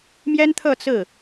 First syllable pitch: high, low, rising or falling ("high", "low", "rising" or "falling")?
high